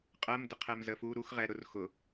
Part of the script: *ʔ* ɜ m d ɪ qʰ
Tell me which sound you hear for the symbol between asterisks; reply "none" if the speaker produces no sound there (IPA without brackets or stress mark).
qʼ